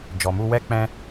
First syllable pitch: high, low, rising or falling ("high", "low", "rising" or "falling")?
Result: low